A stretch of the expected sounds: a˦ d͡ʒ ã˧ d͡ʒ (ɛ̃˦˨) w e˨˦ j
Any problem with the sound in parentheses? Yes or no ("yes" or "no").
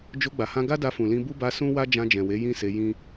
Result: yes